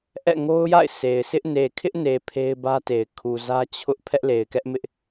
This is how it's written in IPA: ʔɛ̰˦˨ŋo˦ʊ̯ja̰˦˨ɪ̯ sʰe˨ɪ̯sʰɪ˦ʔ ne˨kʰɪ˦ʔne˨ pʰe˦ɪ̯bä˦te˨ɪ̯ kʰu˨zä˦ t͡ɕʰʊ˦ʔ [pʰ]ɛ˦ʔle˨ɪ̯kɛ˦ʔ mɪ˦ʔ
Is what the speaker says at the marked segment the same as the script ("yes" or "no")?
yes